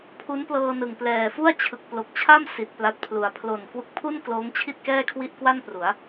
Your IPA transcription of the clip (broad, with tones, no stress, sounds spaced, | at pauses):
pʰ u˦˥ n p l ɤː˧ n ɯ˨˩ ŋ p l ɛː˨˩ f u˥˩ a̯ t͡ɕʰ ɯ˨˩ k̚ p l o˨˩ k̚ t͡ɕʰ a˥˩ m s i˨˩ t̚ p l a˦˥ t̚ pʰ l u˨˩ a̯ pʰ l o˨˩ n k w u˦˥ k̚ pʰ u˥˩ n k l oː˦˥ ŋ t͡ɕʰ i˥˩ t̚ k ɛː˥˩ kʰ w i˥˩ ʔ k w a˥˩ n p r u˩˦ a̯